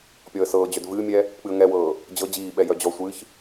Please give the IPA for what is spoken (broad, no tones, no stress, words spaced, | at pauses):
pʲɔə̯sɤːd͡ʑœd vɨːmʲɛ | k͡pɨə̯ŋɛwɤː | d͡ʑɤ d͡ʑiːɓɛ jœd͡ʑɔsʷɨːç